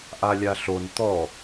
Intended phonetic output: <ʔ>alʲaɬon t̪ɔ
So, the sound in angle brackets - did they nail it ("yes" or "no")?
yes